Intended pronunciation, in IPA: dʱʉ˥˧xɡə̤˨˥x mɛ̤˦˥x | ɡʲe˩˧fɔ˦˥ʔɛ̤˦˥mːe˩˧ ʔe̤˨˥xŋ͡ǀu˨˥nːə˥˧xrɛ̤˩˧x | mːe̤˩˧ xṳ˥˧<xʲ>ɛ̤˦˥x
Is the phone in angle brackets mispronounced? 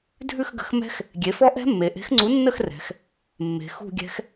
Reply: yes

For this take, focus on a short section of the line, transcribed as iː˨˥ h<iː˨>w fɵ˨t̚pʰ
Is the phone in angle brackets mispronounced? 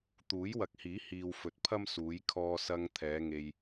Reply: no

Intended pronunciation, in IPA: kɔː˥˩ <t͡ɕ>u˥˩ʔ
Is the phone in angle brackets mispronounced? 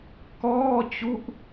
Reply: no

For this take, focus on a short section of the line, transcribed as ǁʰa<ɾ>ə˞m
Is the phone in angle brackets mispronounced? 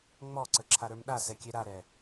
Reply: no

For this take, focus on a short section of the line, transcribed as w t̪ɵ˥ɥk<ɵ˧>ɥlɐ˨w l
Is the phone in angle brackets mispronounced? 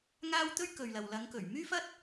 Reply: yes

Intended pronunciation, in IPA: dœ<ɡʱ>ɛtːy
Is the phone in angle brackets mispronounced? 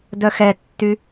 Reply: yes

